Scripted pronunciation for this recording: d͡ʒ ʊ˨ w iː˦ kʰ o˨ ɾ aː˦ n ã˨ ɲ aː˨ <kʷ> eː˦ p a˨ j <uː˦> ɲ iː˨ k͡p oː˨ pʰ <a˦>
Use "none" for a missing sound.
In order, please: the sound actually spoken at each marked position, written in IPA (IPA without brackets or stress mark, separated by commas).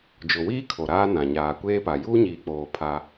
kʷ, uː˦, a˦